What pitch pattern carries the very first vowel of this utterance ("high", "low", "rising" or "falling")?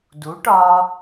rising